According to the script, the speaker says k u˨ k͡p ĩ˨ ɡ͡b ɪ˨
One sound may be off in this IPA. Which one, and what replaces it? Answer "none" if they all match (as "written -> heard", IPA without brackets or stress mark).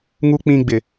k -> ŋ